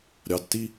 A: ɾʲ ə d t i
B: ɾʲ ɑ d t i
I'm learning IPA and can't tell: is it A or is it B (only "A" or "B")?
B